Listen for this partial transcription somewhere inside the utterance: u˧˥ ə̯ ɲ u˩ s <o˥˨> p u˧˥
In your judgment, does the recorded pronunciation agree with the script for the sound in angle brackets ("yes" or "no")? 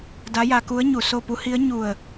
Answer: yes